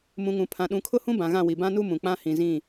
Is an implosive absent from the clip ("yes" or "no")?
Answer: no